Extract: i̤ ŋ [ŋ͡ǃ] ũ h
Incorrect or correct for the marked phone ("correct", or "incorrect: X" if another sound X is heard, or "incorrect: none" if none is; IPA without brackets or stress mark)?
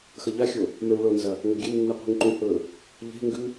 incorrect: ǃ